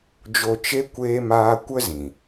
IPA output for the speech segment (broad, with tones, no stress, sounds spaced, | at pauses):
d͡ʒ o˧ t͡ʃ e˦ kʷ eː˦ m aː˦ kʷ ə˦ z ĩ˨